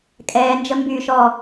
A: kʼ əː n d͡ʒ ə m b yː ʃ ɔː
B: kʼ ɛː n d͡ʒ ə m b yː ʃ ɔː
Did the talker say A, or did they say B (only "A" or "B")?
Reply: B